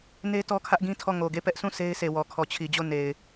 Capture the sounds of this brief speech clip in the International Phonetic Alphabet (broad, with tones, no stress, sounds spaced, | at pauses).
n e˦ t ɔ˦ kʰ ä˦ ʔ ɡ ĩ˦ tʰ ɔ˦˨ ŋ o˨ ɡ e˦˨ p ɛ˦ ʔ s ũ˦˨ s e˦ ɪ̯ sʰ e˨ w ɔ˨ kʰ ɔ˨ t͡ɕʰ i˨ d͡ʑ o˦˨ n e˨ ɪ̯